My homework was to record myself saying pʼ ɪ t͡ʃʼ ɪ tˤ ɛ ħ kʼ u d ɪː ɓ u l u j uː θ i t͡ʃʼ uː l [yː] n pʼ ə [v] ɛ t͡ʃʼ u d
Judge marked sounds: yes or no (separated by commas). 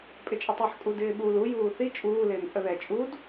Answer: no, no